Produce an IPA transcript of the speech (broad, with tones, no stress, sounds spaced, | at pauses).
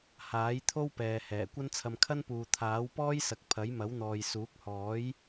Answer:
h aː˨˥ j t̪ʰ o˥ w p ɛː˨ h ɛː˨˩ kʷ ɐ˥ n t͡sʰ ɐ˧ m kʰ ɐ˥ n p uː˨ t̪ʰ aː˨˥ w p ɔː˥ j s ɐ˨ k̚ pʰ ɐ˨˥ j m ɐ˨˥ w n̪ ɔː˨ j s uː˨˥ k̚ h ɔː˨˥ j